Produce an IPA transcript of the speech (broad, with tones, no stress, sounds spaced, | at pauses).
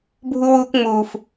bʱ u˧ w uː˧ k ŋ͡m uː˨ f